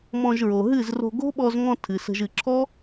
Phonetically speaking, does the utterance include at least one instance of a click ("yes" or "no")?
yes